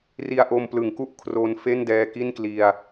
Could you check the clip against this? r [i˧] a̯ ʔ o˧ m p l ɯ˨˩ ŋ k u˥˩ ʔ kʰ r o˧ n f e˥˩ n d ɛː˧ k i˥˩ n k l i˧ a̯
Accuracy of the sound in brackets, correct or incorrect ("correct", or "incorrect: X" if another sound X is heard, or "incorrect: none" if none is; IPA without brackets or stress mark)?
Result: correct